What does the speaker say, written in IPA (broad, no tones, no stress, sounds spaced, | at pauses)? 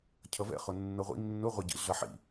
cʰ ʌ v ɛ̰ χ ʊ nː ɤ ʁʷ ḭ nː ʊ ʁʷ ɛ ɟ ḭ ɮ ʌ ħ ḭ